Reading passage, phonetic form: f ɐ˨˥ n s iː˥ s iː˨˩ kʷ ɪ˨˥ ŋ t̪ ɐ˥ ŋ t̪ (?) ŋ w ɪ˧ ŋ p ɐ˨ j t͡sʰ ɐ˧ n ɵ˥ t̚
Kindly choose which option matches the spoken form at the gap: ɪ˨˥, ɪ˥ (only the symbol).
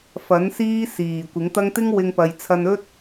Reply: ɪ˥